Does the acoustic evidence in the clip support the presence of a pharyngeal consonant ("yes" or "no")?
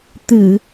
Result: no